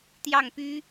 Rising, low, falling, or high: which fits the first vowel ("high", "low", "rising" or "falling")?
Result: falling